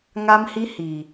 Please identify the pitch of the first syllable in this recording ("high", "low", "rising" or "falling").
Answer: high